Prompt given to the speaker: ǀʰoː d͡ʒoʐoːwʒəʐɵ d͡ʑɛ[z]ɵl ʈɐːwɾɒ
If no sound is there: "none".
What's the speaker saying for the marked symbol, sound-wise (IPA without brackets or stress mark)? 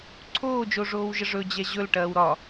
ʑ